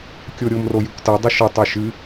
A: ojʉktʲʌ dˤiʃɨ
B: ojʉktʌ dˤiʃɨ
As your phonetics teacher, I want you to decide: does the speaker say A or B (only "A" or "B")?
B